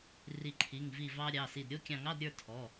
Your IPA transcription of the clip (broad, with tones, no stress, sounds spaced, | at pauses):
r i˧˩ ǃʰ i˩˧˩ ŋ v i˧˩ v ɑ˧ ɾʲ ɑ˩˧˩ s i˧˩ d ɾʲ o˥˧ kʲ ɑ̃˧˩ ŋ ɑ˧˥˧ d ɾʲ ə˞˥˧ tʰ ɔ˩˧˩